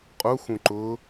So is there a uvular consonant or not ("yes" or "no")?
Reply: yes